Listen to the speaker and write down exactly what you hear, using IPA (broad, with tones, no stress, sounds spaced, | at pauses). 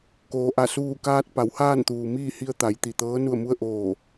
k oː˩˧ ʔ a˧˩ s uː˧˩ k aː˧ t̚ p a˩˧ w h aː˥˨ n t̪ uː˩ m iː˥˨ h i˧ ə̯ t̪ a˩˧ j t̪ i˩ t̪ ɤː˧˥ n u˧˩ ə̯ m u˧ ə̯ ʔ oː˧˩